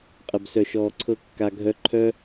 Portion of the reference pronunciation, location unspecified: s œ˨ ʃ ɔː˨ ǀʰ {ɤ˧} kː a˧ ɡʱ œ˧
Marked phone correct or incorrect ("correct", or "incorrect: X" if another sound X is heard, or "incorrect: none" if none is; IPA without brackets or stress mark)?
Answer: correct